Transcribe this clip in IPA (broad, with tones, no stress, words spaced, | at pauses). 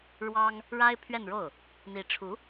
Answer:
ɻwɑ˥ŋ | ɻa˥ɪ̯ pʰɥɛ˥˧nɻo˥˩ʊ̯ | n̪i˧˥ʈ͡ʂʰu˧˥